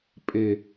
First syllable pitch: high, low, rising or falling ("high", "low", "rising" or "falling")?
low